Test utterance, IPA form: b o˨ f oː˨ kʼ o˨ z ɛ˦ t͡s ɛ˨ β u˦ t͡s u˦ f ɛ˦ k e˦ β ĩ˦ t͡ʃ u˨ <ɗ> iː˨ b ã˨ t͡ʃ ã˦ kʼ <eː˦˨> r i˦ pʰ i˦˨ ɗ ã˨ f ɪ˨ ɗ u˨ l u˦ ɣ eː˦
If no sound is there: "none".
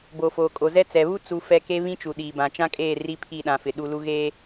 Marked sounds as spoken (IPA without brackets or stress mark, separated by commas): ɗ, eː˦˨